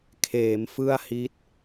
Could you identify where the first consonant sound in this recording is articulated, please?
velar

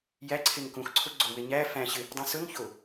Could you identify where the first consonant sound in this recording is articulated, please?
palatal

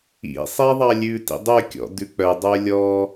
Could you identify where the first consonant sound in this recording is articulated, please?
alveolar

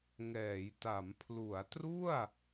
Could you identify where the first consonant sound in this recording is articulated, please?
velar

